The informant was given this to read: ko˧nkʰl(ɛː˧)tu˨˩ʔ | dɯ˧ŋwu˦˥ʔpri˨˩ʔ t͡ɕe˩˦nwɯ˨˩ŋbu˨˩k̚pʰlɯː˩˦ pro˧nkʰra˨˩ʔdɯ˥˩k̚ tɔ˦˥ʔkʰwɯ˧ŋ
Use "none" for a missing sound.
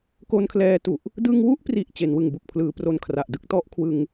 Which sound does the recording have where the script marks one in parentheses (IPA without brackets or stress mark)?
ɛː˧